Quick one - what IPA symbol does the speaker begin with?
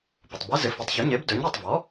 p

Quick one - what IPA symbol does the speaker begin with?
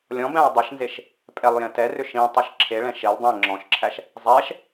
lʲ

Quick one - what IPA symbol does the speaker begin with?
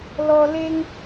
l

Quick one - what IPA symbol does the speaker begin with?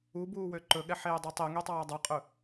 u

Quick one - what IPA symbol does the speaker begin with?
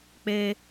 k͡p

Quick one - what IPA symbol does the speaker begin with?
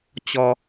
t͡ɕ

